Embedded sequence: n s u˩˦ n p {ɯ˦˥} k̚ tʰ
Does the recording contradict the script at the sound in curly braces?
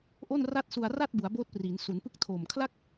no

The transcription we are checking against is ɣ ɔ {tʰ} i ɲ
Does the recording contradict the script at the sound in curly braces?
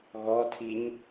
no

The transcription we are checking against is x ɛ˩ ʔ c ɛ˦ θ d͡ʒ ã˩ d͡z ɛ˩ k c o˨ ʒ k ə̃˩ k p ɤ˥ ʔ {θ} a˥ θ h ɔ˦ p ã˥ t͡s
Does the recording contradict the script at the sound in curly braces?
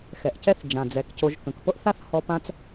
no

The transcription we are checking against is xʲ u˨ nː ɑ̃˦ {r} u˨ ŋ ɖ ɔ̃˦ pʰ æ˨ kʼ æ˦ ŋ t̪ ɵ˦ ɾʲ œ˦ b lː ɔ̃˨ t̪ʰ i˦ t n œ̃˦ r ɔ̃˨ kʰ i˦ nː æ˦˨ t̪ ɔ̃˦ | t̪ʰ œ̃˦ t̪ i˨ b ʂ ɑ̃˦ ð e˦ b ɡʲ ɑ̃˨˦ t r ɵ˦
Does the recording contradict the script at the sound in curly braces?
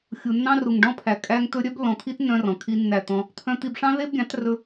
no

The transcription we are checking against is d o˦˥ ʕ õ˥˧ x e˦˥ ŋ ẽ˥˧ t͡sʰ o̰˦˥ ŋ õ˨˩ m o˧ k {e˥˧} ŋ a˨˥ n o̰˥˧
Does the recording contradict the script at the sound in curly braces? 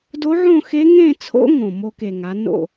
yes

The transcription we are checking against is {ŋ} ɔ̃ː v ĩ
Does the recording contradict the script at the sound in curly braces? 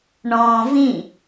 yes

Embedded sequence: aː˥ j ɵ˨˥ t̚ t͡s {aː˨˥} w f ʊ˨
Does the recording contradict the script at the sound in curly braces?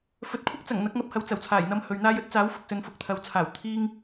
no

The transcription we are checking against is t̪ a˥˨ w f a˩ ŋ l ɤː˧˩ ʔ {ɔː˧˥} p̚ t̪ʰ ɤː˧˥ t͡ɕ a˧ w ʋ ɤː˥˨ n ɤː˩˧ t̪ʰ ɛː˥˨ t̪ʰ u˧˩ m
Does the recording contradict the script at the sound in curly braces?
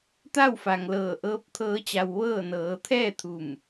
yes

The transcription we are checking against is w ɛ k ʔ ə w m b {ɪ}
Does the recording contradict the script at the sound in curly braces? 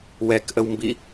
yes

